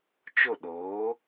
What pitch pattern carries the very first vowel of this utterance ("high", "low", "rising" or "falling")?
falling